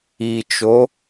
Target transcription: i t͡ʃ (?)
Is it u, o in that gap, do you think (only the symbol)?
o